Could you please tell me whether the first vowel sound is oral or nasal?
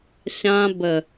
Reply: nasal